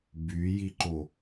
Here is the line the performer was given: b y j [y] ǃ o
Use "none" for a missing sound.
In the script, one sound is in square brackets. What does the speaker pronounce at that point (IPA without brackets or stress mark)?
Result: i